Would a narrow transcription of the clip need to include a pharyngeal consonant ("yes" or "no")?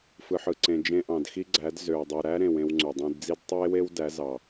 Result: yes